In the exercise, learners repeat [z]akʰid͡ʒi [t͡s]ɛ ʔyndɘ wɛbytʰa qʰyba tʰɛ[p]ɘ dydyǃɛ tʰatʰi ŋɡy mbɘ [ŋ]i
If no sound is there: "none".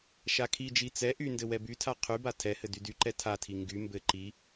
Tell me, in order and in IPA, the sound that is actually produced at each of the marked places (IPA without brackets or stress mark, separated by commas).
ʃ, t͡s, h, ǃ